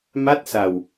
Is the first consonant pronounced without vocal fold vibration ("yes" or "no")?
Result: no